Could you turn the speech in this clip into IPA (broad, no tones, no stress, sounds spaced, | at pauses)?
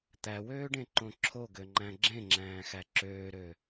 t̪ æ w øː ɖ ẽ ǃ õ ǁʰ o ɡ ø ŋ͡ǃ æ̃ ɡ͡ǁ ẽ ŋ͡ǁ æ̃ː x æ ǁ øː ɾ ø